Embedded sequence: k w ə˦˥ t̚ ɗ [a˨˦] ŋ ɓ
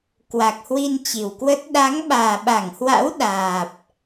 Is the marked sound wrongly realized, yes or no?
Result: no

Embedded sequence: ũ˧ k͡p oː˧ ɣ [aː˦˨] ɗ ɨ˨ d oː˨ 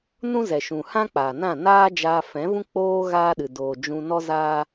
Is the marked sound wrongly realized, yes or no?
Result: yes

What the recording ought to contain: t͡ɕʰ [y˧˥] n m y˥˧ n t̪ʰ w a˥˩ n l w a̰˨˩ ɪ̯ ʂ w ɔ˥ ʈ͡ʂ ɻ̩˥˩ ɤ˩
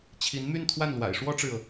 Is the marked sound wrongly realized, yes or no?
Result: yes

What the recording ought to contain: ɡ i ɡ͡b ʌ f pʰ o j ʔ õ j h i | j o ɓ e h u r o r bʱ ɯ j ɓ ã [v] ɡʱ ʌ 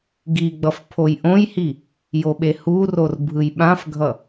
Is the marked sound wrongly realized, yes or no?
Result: yes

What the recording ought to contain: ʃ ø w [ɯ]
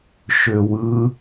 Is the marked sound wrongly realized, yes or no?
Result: no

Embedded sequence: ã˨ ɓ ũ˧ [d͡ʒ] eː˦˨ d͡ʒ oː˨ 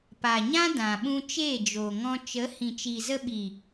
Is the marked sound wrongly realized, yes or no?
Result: yes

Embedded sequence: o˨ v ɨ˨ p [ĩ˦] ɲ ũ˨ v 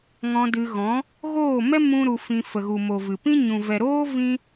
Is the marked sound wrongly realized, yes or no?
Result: no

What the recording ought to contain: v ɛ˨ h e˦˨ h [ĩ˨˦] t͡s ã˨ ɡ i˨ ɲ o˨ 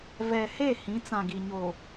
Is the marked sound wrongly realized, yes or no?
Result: no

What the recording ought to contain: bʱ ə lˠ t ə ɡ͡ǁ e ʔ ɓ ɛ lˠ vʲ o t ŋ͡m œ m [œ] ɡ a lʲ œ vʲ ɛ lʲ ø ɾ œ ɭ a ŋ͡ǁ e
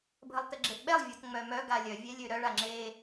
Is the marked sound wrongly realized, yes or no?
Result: no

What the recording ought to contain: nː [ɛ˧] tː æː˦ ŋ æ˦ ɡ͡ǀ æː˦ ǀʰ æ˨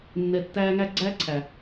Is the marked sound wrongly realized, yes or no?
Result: no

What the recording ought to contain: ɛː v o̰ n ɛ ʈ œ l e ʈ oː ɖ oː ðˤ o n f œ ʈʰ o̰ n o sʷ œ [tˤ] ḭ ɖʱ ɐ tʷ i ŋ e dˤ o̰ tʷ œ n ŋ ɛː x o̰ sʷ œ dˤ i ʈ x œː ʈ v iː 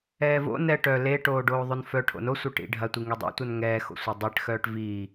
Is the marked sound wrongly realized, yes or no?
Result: yes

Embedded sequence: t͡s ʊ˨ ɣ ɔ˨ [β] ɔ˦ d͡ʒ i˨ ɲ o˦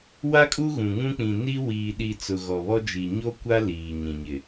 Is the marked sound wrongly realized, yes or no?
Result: no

